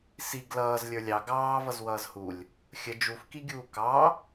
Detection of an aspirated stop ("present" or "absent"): absent